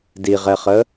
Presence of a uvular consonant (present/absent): present